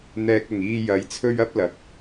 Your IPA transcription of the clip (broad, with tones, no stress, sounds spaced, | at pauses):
n̪ ɛː˨ k̚ ʊ˨˩ ŋ iː˧ j ɐ˨˧ j t͡sʰ ɵ˥ ɥ ɐ˥ p̚ l ɐ˨˥ k̚